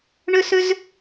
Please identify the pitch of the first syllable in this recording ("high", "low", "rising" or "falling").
high